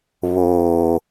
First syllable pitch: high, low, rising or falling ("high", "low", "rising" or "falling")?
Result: low